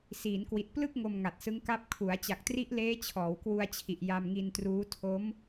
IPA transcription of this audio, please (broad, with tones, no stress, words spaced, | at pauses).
siː˩˦nkwi˨˩t̚plɯ˥˩k̚ ŋo˧mŋa˨˩t̚sɯ˦˥ŋka˦˥p̚ kʰu˩˦a̯ t͡ɕa˨˩k̚tri˦˥ʔleː˦˥ t͡ɕʰɔː˩˦wkwu˧a̯t͡ɕʰi˨˩ʔ ja˧mŋi˧ntruː˦˥ tʰo˦˥m